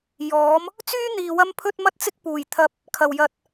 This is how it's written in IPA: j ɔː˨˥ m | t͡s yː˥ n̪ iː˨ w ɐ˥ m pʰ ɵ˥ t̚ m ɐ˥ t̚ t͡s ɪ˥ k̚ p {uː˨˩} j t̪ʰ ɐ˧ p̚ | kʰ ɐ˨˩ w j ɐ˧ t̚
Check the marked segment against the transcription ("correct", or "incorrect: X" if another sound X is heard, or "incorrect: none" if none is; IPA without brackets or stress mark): correct